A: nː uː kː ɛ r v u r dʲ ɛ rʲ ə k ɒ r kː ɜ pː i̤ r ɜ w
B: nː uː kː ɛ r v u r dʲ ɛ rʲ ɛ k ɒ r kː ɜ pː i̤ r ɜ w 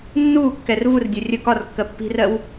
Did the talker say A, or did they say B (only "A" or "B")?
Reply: A